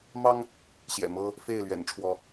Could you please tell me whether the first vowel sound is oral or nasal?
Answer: oral